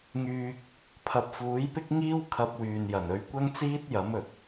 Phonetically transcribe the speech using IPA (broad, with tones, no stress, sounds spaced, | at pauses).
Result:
ŋ yː˧ k̚ | pʰ ɐ˨ p̚ f uː˨˥ j p ɪ˥ k̚ ŋ iː˥ w kʰ ɐ˧ p̚ w yː˨ n j ɐ˨˩ n ɵ˨˧ ɥ kʷ ɐ˥ ŋ t͡s iː˥ t̚ j ɐ˨˥ m ɵ˨ t̚